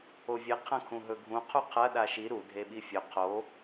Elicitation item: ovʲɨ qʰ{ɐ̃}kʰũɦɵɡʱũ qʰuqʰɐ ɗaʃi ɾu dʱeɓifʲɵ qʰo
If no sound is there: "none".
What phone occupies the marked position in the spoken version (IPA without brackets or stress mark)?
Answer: ɐ̃